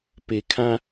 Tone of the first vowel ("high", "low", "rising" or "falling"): low